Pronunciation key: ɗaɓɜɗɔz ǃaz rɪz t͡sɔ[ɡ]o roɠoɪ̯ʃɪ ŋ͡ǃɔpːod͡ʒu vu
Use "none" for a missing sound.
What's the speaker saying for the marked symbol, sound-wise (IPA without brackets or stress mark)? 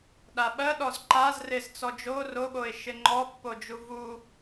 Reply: d͡ʒ